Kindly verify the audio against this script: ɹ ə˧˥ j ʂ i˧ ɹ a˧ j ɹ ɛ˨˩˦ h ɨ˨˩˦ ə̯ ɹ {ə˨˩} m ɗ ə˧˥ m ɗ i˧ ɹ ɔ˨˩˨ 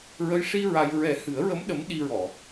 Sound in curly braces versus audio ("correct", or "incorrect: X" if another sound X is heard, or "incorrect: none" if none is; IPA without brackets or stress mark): incorrect: ə˧˥